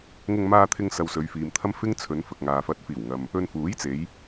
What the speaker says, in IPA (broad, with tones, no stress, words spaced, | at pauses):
ŋʊ˧ŋmaː˧t̪ʰɪ˧ŋsɐ˨w sɵ˨˧ɥfiː˨mt̪ʰɐ˥m fɪ˥ŋ t͡sʰɵ˨˧nfɐ˨k̚ ŋaː˨fɐ˨˥t̚ fiː˨˩wŋɐ˨m | ɵ˧nfuː˨˥jt͡se˨˧j